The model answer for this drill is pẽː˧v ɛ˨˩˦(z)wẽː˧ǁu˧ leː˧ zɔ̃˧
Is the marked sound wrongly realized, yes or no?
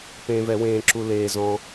yes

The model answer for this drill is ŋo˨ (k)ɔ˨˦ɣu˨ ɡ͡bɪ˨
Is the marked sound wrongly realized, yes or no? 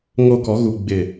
no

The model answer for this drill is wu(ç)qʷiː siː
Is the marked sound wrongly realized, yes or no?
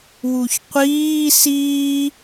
no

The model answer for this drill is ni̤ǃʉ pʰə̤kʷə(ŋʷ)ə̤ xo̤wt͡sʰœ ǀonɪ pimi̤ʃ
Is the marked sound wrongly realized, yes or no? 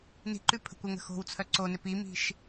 yes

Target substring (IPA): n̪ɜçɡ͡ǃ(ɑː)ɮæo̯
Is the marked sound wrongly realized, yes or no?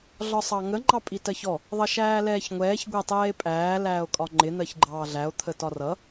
no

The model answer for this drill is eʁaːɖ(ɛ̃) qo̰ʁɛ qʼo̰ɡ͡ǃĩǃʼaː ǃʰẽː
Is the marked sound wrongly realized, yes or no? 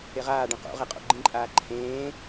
no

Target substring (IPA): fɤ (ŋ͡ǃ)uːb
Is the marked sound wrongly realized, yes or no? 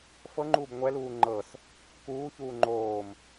no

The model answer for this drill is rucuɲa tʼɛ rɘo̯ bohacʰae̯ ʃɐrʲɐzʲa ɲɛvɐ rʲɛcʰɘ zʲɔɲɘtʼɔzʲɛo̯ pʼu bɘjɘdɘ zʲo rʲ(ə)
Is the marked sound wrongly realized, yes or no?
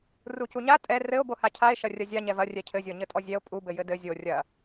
yes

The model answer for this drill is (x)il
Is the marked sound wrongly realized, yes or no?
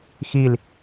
no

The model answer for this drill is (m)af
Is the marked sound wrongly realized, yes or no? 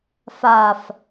yes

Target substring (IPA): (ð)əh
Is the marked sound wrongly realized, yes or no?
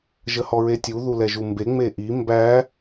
yes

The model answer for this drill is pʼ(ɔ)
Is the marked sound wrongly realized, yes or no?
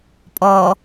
no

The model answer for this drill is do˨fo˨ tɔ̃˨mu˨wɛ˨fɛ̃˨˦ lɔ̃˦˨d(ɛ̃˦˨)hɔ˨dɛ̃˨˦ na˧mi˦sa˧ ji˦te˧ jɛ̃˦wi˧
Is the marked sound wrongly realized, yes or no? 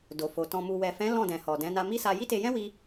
yes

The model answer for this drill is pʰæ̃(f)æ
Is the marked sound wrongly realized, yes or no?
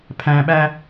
yes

